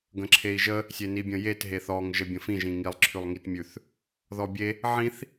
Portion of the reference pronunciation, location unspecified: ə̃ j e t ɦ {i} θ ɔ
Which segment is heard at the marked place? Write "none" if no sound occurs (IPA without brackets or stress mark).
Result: e